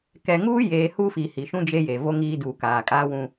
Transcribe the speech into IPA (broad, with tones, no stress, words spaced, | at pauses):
kɛ˨ŋuː˦jeː˨ hu˦fi˨ hi˨ʃũ˦ d͡ʒe˦je˨ vo˦ŋiː˦ duː˨kaː˨kʼaː˦wũ˦